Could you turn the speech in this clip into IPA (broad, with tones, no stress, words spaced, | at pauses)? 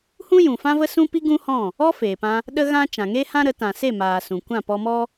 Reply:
hũ˦jũ˨ fã˦və˦ sũ˦pi˦ ɡũ˦hɔ̃˦˨ | ɔ˦feː˨pã˧ | ɗə˦ɣã˦ t͡ʃã˨ŋe˦hã˦ɾə˨˦ tã˨se˦˨maː˨ sũ˨kʷã˦˨ pɔ˧mɔ˦